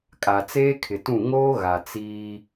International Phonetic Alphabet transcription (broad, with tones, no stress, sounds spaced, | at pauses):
kʼ a˨ t͡s eː˦ kʰ ɪ˨ t ũ˦˨ ŋ oː˦ ɣ a˨ t͡s iː˦